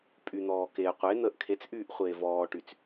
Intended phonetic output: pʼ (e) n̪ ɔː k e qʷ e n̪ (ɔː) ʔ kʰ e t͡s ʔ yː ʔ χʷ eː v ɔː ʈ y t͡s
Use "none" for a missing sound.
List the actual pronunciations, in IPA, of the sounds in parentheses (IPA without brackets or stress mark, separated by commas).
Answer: y, əː